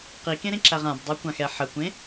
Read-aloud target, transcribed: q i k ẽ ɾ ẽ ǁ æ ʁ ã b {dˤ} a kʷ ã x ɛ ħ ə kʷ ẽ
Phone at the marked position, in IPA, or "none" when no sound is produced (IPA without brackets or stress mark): dˤ